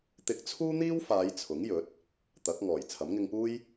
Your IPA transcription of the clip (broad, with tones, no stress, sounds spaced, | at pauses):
t̪ ɪ˥ k̚ t͡sʰ uː˥ n̪ iː˥ w f aː˨˧ j t͡sʰ ʊ˨˥ ŋ j ɵ˨˥ t̚ | t̪ ɐ˨˥ k̚ ŋ ɔː˨˩ j t͡sʰ ɐ˨˥ m ŋ ɪ˧ ŋ p uː˥ j